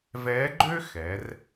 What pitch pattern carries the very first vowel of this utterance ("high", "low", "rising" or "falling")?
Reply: rising